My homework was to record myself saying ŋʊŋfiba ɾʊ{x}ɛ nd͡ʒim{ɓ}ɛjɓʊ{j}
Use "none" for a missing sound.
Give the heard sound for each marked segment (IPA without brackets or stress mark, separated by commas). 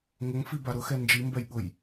x, b, j